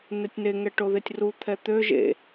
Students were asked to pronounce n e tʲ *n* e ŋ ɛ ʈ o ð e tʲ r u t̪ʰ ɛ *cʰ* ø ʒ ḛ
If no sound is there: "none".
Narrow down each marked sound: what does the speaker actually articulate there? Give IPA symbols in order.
n, t̪

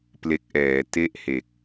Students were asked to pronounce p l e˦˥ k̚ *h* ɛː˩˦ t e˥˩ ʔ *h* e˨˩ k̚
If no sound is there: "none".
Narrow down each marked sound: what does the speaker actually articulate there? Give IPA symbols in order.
ʔ, h

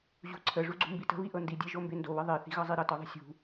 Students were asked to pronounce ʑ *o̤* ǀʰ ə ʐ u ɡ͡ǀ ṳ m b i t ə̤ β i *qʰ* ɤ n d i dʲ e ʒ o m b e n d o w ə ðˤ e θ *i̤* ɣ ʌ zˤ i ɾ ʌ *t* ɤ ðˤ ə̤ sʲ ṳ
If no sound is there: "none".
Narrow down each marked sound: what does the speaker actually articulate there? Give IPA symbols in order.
ṳ, ʔ, i̤, t

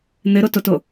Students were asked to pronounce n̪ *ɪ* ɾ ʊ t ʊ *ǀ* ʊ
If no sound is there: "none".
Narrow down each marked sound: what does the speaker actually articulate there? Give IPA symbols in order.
ɪ, t

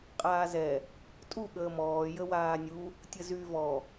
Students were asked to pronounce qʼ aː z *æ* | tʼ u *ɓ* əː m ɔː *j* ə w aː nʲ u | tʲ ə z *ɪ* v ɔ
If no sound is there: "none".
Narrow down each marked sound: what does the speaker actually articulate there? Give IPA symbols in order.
ɛ, ɠ, j, y

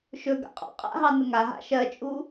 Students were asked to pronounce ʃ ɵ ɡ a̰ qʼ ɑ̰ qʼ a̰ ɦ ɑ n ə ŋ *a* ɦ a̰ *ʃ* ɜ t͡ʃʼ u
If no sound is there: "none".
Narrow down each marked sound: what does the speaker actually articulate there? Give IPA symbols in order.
a, ʃ

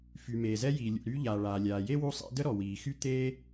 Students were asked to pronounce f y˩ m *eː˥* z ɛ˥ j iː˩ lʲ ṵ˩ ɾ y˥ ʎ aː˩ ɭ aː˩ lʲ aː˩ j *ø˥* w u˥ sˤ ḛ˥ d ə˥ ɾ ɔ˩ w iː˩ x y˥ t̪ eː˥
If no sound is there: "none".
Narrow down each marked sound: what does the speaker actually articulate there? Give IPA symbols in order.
eː˩, e˥

